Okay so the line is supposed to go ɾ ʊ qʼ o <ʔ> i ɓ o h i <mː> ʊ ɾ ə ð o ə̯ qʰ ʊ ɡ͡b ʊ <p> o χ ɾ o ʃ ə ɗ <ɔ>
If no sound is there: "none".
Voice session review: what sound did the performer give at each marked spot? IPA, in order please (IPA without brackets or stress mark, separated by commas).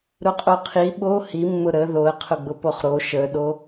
qʰ, mː, p, o